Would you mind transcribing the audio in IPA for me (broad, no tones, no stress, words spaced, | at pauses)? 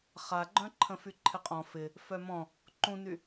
χaɡ͡ǃœ̃ǃʰə̃fy ǃʰɪqʼɔ̃ fɪ | fœmɔ̃ | ǃũny